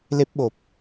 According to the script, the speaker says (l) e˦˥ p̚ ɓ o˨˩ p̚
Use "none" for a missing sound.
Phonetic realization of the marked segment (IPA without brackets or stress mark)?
l